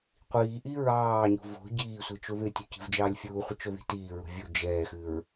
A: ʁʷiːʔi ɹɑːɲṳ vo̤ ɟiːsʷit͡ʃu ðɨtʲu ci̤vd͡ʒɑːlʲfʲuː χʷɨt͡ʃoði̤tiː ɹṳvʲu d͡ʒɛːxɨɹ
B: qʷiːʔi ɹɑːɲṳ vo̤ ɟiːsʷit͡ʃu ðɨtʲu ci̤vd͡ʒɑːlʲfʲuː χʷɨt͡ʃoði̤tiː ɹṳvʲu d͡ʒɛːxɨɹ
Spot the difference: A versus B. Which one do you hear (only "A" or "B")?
B